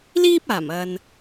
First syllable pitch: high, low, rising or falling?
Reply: high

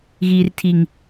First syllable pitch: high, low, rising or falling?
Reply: low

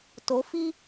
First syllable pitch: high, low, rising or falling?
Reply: rising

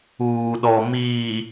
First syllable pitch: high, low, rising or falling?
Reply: low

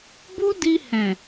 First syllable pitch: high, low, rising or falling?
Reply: high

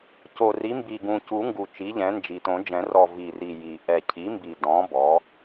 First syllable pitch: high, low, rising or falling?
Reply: low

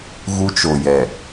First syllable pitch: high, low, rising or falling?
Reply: high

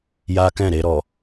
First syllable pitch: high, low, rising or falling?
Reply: high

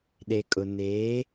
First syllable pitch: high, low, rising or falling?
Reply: low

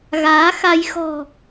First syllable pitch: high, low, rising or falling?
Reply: rising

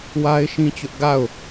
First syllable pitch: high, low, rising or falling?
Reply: high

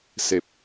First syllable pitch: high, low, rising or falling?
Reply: low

